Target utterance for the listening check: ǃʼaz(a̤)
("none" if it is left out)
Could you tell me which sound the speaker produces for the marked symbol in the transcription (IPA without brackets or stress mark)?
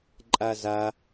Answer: a